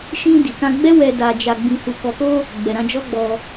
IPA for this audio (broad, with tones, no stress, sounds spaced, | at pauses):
ʃ ĩ˧ d i˨ k ã˧ ɡ͡b ɛ˦ w ɛ˧ d a˧ d͡ʒ a˧ ɡ͡b ĩ˧ h u˨ k ɔ˨ k o˧ | ɡ͡b ɛ˨ ɾ ã˧ d͡ʒ ɔ˦ ɡ͡b ɔ˧